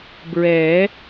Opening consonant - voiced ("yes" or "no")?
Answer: yes